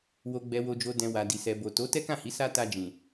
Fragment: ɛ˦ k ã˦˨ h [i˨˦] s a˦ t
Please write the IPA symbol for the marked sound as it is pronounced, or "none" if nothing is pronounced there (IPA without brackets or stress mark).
i˨˦